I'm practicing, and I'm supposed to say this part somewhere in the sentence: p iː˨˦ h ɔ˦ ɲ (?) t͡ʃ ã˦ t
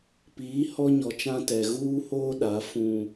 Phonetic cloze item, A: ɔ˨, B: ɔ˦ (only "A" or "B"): A